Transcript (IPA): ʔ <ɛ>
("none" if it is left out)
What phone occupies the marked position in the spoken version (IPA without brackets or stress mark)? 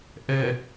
ɛ